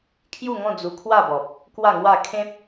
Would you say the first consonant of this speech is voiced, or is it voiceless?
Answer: voiceless